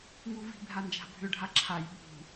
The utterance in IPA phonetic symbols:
ŋ u v i̤ bʱ a n d͡ʒ a̤ bʱ ʏ ɖʱ a ǁʰ a j ɓ ṳ

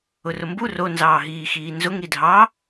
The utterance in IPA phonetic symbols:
ʊ r ʊ m b u r o n z ɑː ɦ iː x iː n z ʊ ŋ ɾ i dʱ ɑ

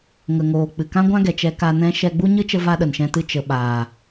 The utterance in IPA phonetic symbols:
ŋ ə˨ ŋ oː˨ k͡p ɨ˨ k ã˦ ɡʷ ã˦ ɡ ɛ˨ t͡ʃ ɛ˧ k a˧ n ɛ̃˧ ʃ ɛ˧ ɡ͡b u˦ ɲ ɨ˦ t͡ʃ ə˦ v a˦ ɗ ə˨ n ʃ ɛ̃˧ t ɨ˧ t͡ʃ ə˨ ɓ aː˨

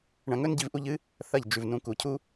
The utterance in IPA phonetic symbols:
ɳ ɐ̃˧ ŋ ɵ˦ n ɟ i˦ v ʔ u˦ ʎ ɨ˦ | θ ɐ˦˨ ʎ d͡ʒ ʉ˨ v n ũ˨˦ k u˨ cʰ u˦

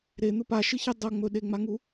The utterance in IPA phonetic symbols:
ɾ e n̪ ɵ p a ʃ ɨ ç i dˤ ɐ ŋ͡m ɵ ɗ e ŋ͡m a ŋ u

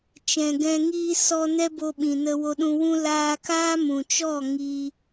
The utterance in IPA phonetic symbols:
t͡ʃ ɛ̃˨ ɡ ɛ̃˧ ŋ iː˧ s ɔ˧ n ɛ˦ b o˧ ɓ ĩ˨ n ə˧ w o˧ ɗ ũ˧ w ũ˦ l aː˧ k aː˦ m ũ˨ t͡ʃ ɔ˦˨ ŋ iː˧

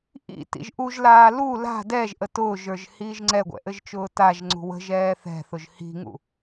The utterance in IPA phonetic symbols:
ʔ ḭ t ḭ ʒ ʔ u ʒ l aː l u l a̤ d ɛ ʒ ʔ ə t ʊː ʒ ə˞ ʒ h iː ʒ ŋ͡ǀ ɛ ɡʷ ɛ̰ ʔ ɘ ʒ t͡ʃ ʊː t a ʒ ŋ͡ǀ ṳ w ə̤ ʒ ɛː θ ɛ̤ θ ʊ ʒ h i̤ ŋ ṵ

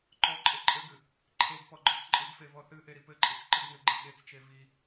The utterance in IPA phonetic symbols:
ǃ ɔ ǃʼ ɘ ǃʼ ɘ ɡ ɨ | ǃʰ e ɡ p ɔ ɡ͡ǃ ɔ t͡s ǃʼ ɨ ɡ f e v ɔ θ ɨ ʔ e ɾ i p ɘ ǃʼ i t͡s ǃ ɨ ɡ ŋ ɘ ɡ͡ǃ e ɠ e t͡s t͡ʃ e v i

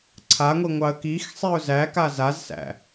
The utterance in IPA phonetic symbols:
ǀʰ a ŋʷ i ŋʷ ɑ ə̯ k i x sˤ i ʊ̯ z æ k a z a z s æ̰

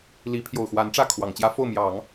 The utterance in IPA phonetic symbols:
l i˧˥ pʰ j o˨˩ ʊ̯ x w a˧˥ n ʈ͡ʂ ä˥˩ kʰ w ɑ˨˩ ŋ t͡ɕ j ä˥ f o˥˩ ʊ̯ m j ɑ˨˩˦ ŋ

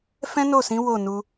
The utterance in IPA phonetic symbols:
f ɛ̃˦ n o˦˨ s ĩ˨˦ w o˦˨ n u˧

